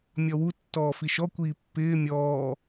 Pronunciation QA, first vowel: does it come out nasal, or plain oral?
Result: oral